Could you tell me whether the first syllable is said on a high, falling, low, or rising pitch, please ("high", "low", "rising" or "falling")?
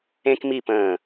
high